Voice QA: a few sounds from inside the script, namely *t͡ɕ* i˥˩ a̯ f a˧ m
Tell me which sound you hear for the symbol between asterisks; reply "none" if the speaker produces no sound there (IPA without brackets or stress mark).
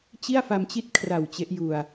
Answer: t͡ɕ